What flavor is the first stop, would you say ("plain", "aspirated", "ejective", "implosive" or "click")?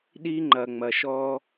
implosive